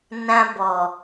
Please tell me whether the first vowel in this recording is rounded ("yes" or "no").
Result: no